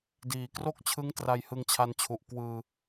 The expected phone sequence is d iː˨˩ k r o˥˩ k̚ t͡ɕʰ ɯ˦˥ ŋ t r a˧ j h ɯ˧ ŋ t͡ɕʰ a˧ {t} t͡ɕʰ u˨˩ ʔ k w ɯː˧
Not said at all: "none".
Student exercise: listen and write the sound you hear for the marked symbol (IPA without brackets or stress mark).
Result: n